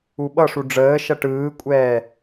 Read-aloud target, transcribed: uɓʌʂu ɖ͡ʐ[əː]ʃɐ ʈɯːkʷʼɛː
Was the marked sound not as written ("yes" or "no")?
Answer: no